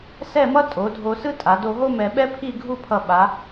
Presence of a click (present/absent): absent